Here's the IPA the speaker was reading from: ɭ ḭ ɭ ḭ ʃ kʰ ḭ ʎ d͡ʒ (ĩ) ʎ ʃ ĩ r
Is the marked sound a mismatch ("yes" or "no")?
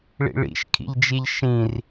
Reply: yes